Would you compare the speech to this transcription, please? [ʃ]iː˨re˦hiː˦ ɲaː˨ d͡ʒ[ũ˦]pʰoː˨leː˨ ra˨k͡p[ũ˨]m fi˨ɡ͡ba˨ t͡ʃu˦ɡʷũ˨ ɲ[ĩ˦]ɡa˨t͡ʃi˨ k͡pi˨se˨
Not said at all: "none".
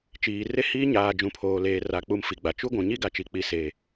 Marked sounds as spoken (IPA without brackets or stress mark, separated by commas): t͡ʃ, ũ˨, u˨, i˦